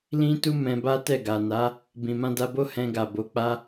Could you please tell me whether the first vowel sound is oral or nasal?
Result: nasal